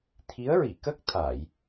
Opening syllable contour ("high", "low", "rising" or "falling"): rising